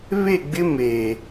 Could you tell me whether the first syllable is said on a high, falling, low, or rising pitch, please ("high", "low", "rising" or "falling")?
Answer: falling